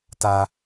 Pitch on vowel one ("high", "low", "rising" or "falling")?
high